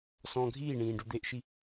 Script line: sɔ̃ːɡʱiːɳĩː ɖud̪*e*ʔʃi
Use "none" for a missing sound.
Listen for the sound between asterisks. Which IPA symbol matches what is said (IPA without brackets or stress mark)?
e